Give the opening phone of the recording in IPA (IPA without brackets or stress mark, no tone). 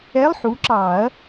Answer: ɛ